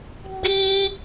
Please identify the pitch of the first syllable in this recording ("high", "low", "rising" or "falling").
high